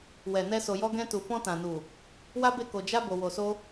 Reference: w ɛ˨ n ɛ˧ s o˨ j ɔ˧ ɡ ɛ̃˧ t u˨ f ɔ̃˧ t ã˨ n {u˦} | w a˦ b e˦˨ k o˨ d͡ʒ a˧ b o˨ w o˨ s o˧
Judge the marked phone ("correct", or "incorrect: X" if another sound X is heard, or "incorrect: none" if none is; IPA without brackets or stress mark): incorrect: u˨